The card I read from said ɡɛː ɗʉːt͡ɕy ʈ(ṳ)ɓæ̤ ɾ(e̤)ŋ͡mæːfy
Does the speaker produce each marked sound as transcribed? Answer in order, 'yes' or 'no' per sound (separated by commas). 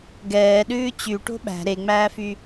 no, no